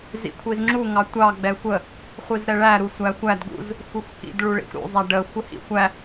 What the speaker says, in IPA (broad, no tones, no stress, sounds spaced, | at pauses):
z ḭ kʷʰ i z ŋ͡ǁ u ŋ ɑ tʷ ɑ ɡ͡b ɛ xʷ ə | χʷ i z ɾ ɛ ɭ æ ɾ u sʷ æ xʷ æ d ɡ ṵ z | xʷ i xʷ k ḭ d ɭ u ɭ ḭ xʷ ɾ ṵ zˤ æ ɖ ə xʷ ə h ḭ xʷ æ